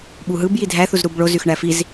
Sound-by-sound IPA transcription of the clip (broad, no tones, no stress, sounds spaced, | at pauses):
ɓ u ɦ ɯ b j i dʱ æ θ u z ɾ u b ɭ o z y x ɳ æ f i z